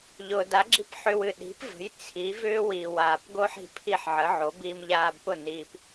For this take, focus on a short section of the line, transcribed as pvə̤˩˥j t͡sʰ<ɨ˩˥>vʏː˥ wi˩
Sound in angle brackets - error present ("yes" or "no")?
yes